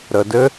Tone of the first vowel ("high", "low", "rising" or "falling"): low